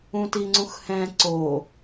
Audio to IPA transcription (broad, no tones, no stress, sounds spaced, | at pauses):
ũ t i ŋ͡ǀ ũ x h ɛ̃ ǀ o